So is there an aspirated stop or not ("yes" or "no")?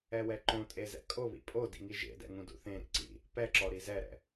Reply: no